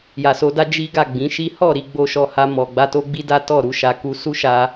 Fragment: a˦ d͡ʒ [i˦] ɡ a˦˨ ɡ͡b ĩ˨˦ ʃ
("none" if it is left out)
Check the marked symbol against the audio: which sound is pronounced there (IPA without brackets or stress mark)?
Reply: i˦